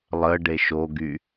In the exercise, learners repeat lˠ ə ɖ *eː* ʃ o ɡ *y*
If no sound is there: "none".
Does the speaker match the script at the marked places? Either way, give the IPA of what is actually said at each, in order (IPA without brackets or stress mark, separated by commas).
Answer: e, y